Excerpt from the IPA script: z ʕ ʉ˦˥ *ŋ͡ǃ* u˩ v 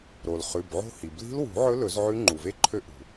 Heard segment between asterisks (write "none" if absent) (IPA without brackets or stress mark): ŋ͡ǃ